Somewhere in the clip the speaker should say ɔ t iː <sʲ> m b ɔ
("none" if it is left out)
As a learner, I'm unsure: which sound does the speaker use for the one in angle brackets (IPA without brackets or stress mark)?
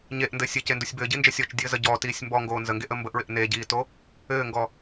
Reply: sʲ